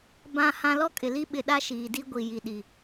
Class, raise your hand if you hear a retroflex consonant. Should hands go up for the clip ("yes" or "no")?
no